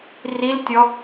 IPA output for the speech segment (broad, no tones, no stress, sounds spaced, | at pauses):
r i l tʲ ɔ